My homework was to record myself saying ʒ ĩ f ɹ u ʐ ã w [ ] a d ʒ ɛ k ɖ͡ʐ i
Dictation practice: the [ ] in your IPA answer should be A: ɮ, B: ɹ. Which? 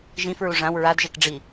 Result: B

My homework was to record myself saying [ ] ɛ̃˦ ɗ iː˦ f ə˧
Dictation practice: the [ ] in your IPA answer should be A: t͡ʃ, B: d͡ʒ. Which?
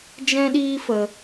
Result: B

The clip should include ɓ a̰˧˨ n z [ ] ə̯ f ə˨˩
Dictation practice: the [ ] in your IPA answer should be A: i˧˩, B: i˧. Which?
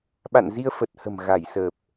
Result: B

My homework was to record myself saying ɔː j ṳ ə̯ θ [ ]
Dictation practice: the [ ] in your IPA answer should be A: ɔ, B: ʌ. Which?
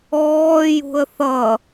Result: B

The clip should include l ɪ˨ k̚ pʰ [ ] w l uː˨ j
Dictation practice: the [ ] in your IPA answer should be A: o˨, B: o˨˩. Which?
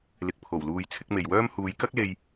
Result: B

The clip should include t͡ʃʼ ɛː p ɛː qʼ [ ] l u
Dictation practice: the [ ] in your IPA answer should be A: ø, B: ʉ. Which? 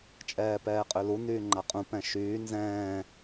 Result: A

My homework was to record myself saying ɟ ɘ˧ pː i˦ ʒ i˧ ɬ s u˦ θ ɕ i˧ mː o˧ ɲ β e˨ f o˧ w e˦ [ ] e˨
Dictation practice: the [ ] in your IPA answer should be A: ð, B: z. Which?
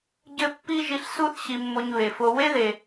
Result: A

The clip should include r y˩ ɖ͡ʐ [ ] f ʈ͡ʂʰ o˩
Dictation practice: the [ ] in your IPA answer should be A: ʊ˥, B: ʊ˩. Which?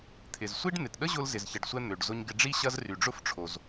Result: A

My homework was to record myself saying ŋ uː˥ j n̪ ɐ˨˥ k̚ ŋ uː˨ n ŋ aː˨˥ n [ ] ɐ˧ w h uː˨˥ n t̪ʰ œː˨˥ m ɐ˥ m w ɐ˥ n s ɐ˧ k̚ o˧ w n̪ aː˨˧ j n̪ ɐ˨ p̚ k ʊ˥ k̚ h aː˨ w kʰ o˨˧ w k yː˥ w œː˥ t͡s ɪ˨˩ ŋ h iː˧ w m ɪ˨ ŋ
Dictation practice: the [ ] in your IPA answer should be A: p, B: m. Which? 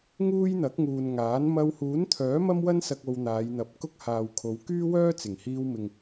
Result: B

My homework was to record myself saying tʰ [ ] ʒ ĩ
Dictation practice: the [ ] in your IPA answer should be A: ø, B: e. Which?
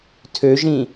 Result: A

